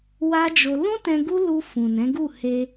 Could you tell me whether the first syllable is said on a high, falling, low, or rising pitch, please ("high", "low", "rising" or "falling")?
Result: high